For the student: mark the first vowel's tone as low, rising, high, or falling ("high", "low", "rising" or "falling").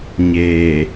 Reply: low